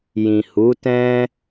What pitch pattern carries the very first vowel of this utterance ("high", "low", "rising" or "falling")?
low